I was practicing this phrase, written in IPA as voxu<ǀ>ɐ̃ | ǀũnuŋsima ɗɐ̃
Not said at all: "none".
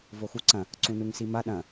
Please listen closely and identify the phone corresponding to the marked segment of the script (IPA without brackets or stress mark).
ǀ